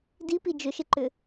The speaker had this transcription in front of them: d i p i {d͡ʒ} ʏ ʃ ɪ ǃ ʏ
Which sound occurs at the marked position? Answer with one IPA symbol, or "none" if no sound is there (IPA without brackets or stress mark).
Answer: d͡ʒ